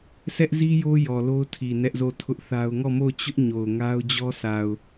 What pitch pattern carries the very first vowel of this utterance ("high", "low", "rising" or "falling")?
high